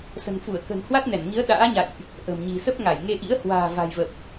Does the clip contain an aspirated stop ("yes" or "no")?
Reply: no